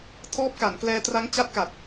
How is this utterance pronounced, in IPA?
tʰ ɔː˦˥ p̚ k a˩˦ n k l ɛː˧ t r a˦˥ ŋ t͡ɕ a˦˥ t̚ k a˨˩ t̚

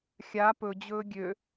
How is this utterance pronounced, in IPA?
xʲ a p ɵ d͡ʑ ɵː ɡʲ ø

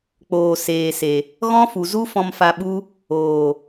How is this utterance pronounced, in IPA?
k͡p oː˨ s eː˨ s e˨ | ɣ ɔ̃˦ f u˨ z u˦ f ɔ̃˧ m f a˧ ɓ u˦ | oː˨

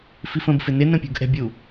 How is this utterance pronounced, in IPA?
f i f ə̃ b f ɪ n ɪ n ə̃ pʲ ṳ ɡ ʔ ɛ̤ bʲ u

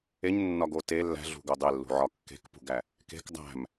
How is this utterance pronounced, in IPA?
e ɲ nː ɒ ɡ o t e lː æ̤ ɮ ṳ ɡ o dˤ e lː ṳ ʕ ɒ kː e̤ k p ṳ ɡ æ | k e̤ k dˤ æ̤ m

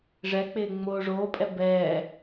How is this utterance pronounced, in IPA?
ʐ ɛ k͡p ɪː ŋ͡m oː ʐ oː pʼ ɛ b ɛː

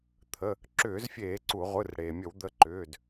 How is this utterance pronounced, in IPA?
t̪ʰ ə˩˧˩ | ǁ ʏː˧˩˧ z fʲ eː˧˩˧ ǀ u˧˩˧ ʁʷ ɯ˩˧˩ r ɽ eː˩ mʲ ə˧˩˧ w d̪ ə˩˧˩ ǃ ʏː˩˧˩ d

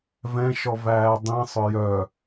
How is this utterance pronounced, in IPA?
v ɛ̃ ʃ ɔ v æː dˤ ĩ sˤ œ j œ

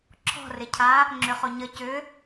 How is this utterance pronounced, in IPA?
ǁʰ ɔ̤ r ɪ cʰ a | ŋ͡ǁ ʏ χ o ɲ ə c ʏ

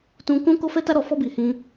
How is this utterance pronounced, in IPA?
t ũ˦ k ũ˦ k o˦ f ɛ˦ t a˦ ɾ ɔ˧ f ɔ˦ b i˧ h ĩ˦

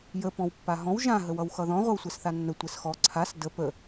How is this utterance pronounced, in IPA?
j ə p ɔ̃ w pː a ɦ ɔ̃ w ʒ ã ɦ ə w ʌ w x ʌ ð ɔ̃ ʁʷ ʌ w sʷ ɛ s θ a nː ə tʷ ɛ s x ɔ ǀʰ a s d ə p ə

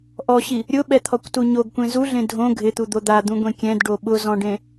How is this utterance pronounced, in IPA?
ʔ ɔ ɕ i | ɾʲ ʊ ɓ ɛ t̪ʰ ɔ kʷ t u ɲ o ɡ kʷ ẽ z u ɮ ẽ dʱ õ ɡʱ ɪ t̪ u d̪ o d̪ a d̪ ũ ɡʷ ẽ kʲ ɛ̃ d ɖ o ɓ ʊ z ɔ̃ ɖ ẽ

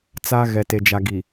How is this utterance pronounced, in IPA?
t͡s a˦ ɣ ɛ˨ t e˨ d͡ʒ a˨ ɡ i˨

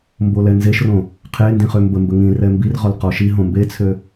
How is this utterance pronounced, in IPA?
m b o l ɛ n z e ʃ r õ | qʰ e n d ĩ χ ø m b ə m b ə ŋ ĩ r ɛ m b i r ʁ ɔ l q ɔ ʃ i ɦ õ m b e t͡sʰ ø

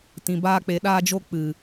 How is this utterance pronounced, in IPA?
t ĩ˧ b aː˦ k͡p e˧ ɗ aː˦ d͡ʒ o˦ k͡p ɨ˨

